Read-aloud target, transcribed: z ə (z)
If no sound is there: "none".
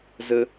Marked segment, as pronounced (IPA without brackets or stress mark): none